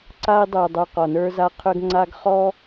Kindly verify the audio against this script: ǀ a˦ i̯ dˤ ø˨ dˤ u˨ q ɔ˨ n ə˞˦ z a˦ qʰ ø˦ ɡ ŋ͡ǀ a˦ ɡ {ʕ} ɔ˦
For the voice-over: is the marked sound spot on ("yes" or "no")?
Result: no